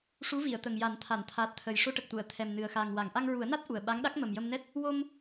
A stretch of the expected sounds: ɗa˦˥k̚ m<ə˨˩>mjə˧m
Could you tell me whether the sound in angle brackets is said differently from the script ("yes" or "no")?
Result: no